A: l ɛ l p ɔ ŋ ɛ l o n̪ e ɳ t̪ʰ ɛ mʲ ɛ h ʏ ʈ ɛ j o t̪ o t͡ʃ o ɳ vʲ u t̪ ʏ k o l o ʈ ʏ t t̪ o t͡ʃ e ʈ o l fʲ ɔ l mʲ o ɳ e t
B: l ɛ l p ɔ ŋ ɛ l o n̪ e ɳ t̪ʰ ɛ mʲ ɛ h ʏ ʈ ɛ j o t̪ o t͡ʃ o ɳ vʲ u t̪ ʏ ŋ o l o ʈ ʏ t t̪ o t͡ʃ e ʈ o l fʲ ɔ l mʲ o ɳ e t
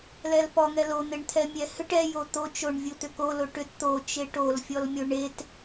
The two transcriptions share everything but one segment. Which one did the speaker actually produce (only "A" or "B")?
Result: A